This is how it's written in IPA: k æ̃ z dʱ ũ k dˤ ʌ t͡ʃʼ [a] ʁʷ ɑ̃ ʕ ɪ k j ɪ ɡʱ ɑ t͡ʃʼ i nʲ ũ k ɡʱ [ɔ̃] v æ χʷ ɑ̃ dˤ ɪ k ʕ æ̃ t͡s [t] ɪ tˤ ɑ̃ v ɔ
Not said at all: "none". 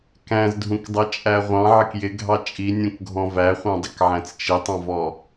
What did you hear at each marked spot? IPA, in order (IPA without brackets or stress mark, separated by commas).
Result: æ, ɔ̃, t͡ʃ